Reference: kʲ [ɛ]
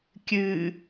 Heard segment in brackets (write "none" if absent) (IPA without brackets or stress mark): ɨ